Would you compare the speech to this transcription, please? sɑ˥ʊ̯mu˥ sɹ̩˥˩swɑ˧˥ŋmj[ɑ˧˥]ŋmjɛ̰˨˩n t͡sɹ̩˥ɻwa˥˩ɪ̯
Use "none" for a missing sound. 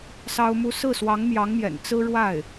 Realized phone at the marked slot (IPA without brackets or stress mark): ɑ˧˥